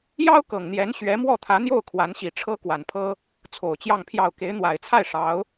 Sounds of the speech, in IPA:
jɑ˥ʊ̯kɤ˨˩ŋn̪jɛ˧˥n ɕɥɛ˧˥mwɔ˥˩t̪ʰä˧˥n̪jo˥˩ʊ̯ kʰwa˧˥nɕi˨˩ʈ͡ʂʰɤ˥ kwa˨˩npʰɤ˥ | t͡sʰo˨˩ʊ̯t͡ɕjɑ˥˧ŋpʰjɑ˥˩ʊ̯ ke˧˥ɪ̯n̪wa˨˩ɪ̯t͡sʰa˥˩ɪ̯ ʂɑ˧˥ʊ̯

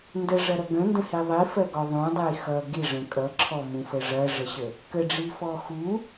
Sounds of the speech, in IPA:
ndəʐɐɾʌ ɡə̃ndə̃hi ðˤifɜɡɔ ðˤũdˤi xʌ ɡiʐə̃ kʼʌǁʰɔmũfə ʐɐʐəɕə | kəɖ͡ʐifɔ xu

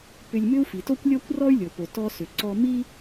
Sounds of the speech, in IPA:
pʏ˧lʲmʏ˥u̯ fi˩to˥kʷlʲɔ˥kʷrɔ˥y̯ lʲo˩po˩ tɔ˧ sʏ˩ ǀɔ˧ mi˥

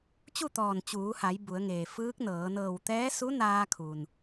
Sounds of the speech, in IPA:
t͡ɕu˥˨t̪ɔː˧˩n t͡ɕuː˩˧ha˩˧j bu˩˧ə̯ŋeː˩fɯː˧˥k̚nɤː˩˧ nɤː˧˩wt̪ɛː˧˥ su˧˥naː˧kʰu˩n

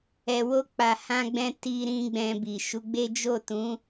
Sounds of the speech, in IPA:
ɛ˨wo˧k͡pa˨ hã˧ɡ͡bɛ̃˧ ti˧ɾĩ˧ ɡ͡bɛ̃˧bi˨ ʃu˨˦ɡ͡be˦ d͡ʒo˦˨tũ˨˦

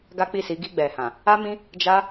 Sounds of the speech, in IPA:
ɡa˦k͡pi˦˨si˨˦ ɡi˧ɡ͡bɛ˨hã˨ | a˦mĩ˦ | d͡ʒa˦

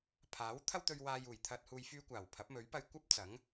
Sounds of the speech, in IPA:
pʰaː˨˥w t̪ʰɐ˥wt̪ɵ˧ɥ waː˨juː˨˩j t̪ʰɐ˨t̚huː˨j fyː˧kʷaː˨˩w pʰɐ˨˥p̚mɵ˨˥ɥpɐ˧j kʷɐ˥p̚t͡sɐ˨˥ŋ

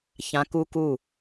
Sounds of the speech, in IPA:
çã ku ku

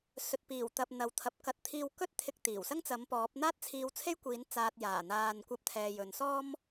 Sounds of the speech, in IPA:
sɵ˨t̚ piː˨˩wt̪ɐ˨p̚ n̪ɐ˨˥wt̪ʰɐ˨˥p̚kɐ˧t̚ t̪ʰiː˧w kɵ˥t̚t̪ʰɪ˧k̚t̪iː˨˩w sɐ˥ŋt͡sɐ˨˥mpɔː˨˥p̚ n̪aː˥t̚t͡sʰiː˧wt͡sʰe˥jkʷiː˨˥n t͡saː˧t̚jaː˨˩ n̪aː˨nkʷɐ˨˥p̚ t̪ʰɛː˨jɵ˨nsɔː˥m

